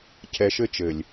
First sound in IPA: cʰ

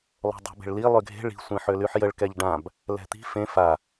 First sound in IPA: lˠ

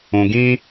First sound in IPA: ũ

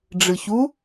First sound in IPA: ɖ͡ʐ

